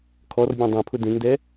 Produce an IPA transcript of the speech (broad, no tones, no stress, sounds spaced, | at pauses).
kʰ ɔ r bʲ ɔ̃ dˤ ẽ pʰ ʊ d ẽ ŋ d ɛ